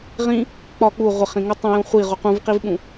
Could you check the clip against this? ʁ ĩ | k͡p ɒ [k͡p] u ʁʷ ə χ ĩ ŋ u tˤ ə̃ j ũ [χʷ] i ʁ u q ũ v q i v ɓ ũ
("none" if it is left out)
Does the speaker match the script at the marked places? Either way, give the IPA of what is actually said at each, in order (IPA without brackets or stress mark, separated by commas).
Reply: k͡p, χʷ